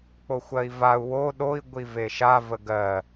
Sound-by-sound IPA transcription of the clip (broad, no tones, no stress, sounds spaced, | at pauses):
k͡p o xʷ ɜ i̯ v a u̯ w o ɗ o i̯ ɡʷ i v e ʃ a v ə ɡ ɜ